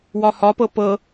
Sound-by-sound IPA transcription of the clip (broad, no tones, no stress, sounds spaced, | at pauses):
w ɒ h ɒ p ɤ p ɤ